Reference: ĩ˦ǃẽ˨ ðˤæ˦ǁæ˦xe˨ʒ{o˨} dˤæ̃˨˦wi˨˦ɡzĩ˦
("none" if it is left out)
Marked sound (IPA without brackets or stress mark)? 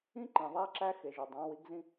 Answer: o˨